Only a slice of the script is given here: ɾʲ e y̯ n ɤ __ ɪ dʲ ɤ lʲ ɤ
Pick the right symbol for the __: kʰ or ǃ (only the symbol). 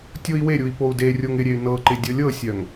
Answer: ǃ